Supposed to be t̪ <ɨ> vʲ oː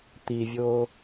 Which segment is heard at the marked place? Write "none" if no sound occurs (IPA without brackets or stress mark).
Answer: i